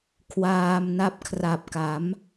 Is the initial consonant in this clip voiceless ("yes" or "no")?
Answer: yes